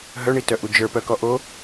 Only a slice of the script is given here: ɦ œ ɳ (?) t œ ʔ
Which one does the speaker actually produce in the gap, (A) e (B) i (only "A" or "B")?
B